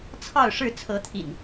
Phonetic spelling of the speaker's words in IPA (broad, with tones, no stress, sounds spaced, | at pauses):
t͡sʰ ɑ˥˨ ʊ̯ ʂ ɻ̩˥˨ t͡sʰ ɤ˨˦ t̪ʰ ḭ˨˩ n